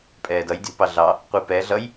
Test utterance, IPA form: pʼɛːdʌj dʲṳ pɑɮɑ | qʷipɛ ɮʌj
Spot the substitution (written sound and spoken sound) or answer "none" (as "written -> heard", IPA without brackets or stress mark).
none